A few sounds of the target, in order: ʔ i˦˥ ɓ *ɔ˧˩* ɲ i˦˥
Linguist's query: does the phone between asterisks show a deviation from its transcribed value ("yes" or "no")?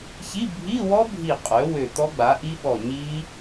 no